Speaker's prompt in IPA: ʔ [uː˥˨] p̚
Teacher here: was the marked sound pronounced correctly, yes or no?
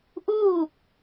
yes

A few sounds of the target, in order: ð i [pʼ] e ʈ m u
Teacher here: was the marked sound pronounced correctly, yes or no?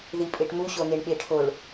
yes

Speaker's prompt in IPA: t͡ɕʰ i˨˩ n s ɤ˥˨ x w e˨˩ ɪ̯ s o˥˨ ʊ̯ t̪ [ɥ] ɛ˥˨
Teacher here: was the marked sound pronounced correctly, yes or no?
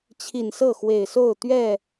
yes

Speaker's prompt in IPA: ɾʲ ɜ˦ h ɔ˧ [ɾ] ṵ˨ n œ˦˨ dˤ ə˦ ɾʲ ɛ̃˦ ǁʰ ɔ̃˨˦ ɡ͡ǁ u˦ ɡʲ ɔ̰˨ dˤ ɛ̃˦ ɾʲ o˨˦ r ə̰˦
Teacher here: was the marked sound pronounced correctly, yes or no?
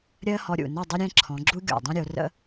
no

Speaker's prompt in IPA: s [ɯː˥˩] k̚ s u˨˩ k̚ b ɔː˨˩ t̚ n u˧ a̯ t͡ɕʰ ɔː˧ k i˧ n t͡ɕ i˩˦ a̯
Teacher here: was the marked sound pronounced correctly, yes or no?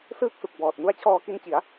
yes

